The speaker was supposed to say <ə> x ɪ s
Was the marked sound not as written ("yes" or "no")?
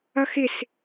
yes